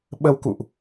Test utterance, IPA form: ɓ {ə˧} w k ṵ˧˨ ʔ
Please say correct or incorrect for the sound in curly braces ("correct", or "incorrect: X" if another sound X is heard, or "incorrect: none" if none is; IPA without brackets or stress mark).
correct